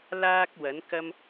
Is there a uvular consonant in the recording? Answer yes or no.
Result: no